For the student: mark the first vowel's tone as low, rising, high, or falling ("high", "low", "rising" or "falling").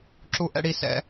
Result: high